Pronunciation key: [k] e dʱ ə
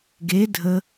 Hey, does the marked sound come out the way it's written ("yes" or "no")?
no